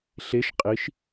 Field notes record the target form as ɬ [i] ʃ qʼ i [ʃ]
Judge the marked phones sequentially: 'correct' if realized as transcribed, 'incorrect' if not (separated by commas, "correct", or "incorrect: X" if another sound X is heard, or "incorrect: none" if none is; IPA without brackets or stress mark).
incorrect: e, correct